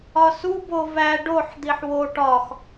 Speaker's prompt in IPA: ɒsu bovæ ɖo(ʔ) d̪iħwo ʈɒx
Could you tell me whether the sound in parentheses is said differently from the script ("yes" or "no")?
yes